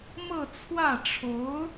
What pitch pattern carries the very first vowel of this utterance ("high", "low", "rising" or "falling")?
falling